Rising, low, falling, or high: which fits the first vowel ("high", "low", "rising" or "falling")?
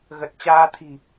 low